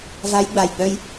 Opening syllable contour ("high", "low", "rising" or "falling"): rising